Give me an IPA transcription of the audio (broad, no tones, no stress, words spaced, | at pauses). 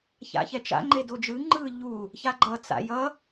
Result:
ça̰çɛt͡ʃa̰ ŋ͡ǃedod͡ʒɯ ŋ͡ǃɯ ʎu | çaɡ͡ǃʌ t͡sa̰jʌ